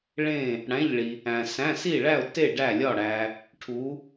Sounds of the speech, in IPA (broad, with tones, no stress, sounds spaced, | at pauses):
ɭ ẽ˥˨ | ɽ æ̃˧˥˧ ʎ ɭ i˨ | æ̃˨ s æ̃˧˥˧ s i˥˨ ɭ æ˥˨ ʊ̯ t e˥˨ ɖ æ˥˨ lʲ ɒ˥˨ ɽ æ˨ | ʈʰ u˨˦